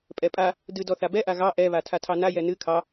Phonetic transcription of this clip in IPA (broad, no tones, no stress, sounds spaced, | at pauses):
pʼ ɛ pʼ a | d ɨ d ɔ θ a b ɛ ʔ a ɣ ɑ ʔ ɛ β a tʰ a tʰ ɑ n a j ɛ n ɨ kʰ ɑ